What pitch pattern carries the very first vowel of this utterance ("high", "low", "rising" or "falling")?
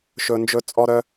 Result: high